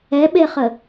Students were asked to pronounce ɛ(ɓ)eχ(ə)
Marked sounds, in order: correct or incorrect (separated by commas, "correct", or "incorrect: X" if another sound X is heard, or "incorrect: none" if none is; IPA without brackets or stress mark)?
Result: correct, correct